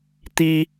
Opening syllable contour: high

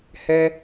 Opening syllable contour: high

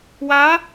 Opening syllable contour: rising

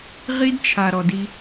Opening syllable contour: high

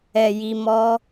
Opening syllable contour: low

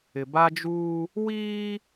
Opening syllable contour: low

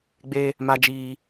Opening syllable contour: high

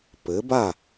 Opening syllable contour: rising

